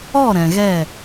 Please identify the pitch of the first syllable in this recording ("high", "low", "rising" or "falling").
falling